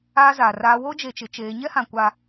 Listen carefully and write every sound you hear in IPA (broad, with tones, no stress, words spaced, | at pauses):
aː˦zaː˨raː˦ wo˦d͡ʒe˨t͡ʃɪ˨˦ t͡ʃeː˨˦ ɲɛ˦hã˨ kʷa˦